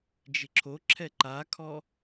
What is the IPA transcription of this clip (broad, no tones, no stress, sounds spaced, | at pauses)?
d͡ʒ ɪ ǁʰ o ǁʰ ɛ ǃ a kʰ ɔ